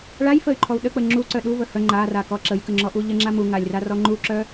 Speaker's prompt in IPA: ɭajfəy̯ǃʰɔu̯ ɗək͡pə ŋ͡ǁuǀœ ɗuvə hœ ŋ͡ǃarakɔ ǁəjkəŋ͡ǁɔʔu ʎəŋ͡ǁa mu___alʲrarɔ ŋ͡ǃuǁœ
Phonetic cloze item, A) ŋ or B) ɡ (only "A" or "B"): A